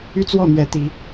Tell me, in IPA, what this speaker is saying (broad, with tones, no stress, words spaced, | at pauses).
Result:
y˦t͡swɔ˥˨n̪ɥɛ˨˦ t̪i˨˦